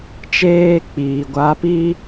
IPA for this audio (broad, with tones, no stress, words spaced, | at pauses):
t͡ʃeː˦k͡piː˨ ɡʷa˧pi˦